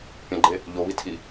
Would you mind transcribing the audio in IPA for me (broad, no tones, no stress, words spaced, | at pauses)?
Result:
pʲɐ̃ɡ͡ǃe | ʎoβitʰi